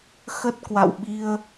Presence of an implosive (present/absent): present